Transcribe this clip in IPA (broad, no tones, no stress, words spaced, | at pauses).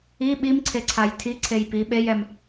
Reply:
i ɓimǀʰeǀʰaj tʰiǀʰej pi ɓejɛm